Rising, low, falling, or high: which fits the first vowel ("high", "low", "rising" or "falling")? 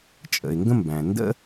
low